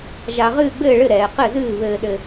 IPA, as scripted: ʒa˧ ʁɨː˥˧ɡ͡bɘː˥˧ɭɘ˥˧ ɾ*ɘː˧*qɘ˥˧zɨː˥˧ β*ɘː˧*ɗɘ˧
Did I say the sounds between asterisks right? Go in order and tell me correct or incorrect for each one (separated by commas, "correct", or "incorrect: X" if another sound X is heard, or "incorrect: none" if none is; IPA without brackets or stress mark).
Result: incorrect: ɛː˧, correct